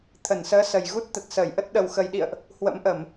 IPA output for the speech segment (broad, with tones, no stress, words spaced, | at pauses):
t̪ʰə˧˩nsəː˨˦ sə˨˩jɣu˦˥t̚ t̪ə˨˩t̚səː˧˩jʔə˦˥t̚ ɗə˨˩wxə˨˩jɗḭ˧˨ə̯ʔ | hwə̰˧˥mʔə˧˩˨m